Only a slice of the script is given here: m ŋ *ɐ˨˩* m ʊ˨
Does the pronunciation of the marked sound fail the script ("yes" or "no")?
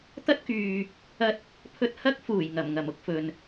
no